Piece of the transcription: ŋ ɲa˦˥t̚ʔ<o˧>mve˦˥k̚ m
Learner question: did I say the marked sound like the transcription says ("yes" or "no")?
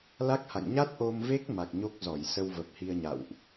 yes